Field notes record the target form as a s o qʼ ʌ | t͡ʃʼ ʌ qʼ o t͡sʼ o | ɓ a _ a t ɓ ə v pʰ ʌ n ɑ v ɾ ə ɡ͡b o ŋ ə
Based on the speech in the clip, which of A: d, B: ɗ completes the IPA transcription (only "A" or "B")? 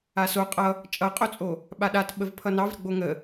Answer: B